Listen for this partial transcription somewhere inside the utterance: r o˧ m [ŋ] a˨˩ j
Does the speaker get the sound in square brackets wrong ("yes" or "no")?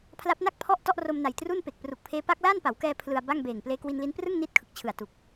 yes